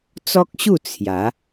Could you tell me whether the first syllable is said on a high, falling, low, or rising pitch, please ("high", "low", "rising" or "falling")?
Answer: high